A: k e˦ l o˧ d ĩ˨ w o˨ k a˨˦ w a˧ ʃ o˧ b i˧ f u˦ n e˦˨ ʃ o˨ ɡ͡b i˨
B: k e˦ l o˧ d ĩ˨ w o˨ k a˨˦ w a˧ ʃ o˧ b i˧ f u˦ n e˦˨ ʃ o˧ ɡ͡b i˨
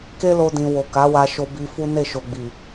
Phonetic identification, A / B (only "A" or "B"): A